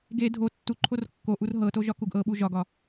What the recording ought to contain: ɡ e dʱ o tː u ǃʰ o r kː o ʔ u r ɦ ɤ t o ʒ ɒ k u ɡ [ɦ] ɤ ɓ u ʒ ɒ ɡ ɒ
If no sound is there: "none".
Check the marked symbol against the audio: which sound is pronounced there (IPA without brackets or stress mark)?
ʔ